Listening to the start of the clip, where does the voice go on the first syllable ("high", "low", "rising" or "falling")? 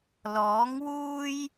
rising